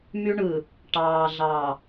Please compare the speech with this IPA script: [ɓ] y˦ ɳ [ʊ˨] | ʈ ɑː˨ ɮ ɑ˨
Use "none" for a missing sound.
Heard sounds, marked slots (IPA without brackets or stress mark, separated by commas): m, ɯ˨